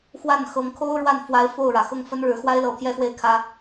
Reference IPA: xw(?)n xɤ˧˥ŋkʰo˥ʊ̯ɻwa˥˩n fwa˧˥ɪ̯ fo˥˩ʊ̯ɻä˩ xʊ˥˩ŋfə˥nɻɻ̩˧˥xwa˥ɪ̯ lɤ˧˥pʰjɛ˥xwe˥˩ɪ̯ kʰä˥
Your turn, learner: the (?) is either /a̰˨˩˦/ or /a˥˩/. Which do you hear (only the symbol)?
a˥˩